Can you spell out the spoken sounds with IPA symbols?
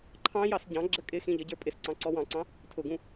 ǃʰ ɑ̃ j ɑ s ɟ ɑ̃ ɡ͡ǁ ə kʼ ɪ x ĩ ʎ ʌ ɟ ə˞ pʼ ɪ s ǀ ɑ̃ ǀ ɔ w ɑ̃ ǀ ɑ̃ | tʰ ʊ ɡ ũ

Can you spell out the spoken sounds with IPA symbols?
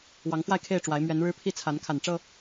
w ɑ˨˦ ŋ f w a˥˨ ɪ̯ kʰ e˥˨ ɪ̯ ʈ͡ʂ w a˨˦ ɪ̯ m ɥ ɛ˨˦ n ɻ ɻ̩˦ pʰ i˥˨ t͡sʰ a˨˦ n kʰ a˨˩ n ʈ͡ʂ ɤ˥˨

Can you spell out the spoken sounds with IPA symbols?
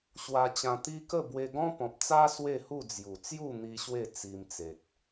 ɕ w a˧ t͡ɕ ã˧ t̪ i˦ k ə˥˧ b w e˧ ɡ ɔ̃˦ p ɔ̃˨ p̚ t͡s a˦ s w e˥˧ h u˥˧ d͡z j u˨˩ t͡s j u˥˧ n̪ i˧ ɕ w e˥˧ t͡s i˧ m t͡s e˨ t̚

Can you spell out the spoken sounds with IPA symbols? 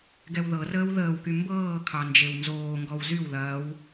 ɡ ɛ w ð ɤ r əː w ð əː w k y m b ɤː kʰ ɑ n d͡ʒ e w n z oː ŋ ɡ ɔ w z y w ð ɐː w

